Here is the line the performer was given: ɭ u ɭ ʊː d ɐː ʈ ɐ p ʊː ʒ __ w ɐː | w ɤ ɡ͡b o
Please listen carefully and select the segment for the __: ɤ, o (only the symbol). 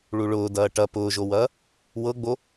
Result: o